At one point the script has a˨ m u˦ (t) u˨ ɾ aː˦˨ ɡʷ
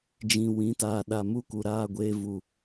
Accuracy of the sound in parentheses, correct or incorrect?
incorrect